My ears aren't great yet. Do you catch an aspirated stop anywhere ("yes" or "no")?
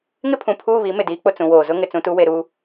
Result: yes